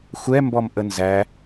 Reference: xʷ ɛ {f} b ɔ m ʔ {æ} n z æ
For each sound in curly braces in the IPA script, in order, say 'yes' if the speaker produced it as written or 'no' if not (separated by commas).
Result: no, no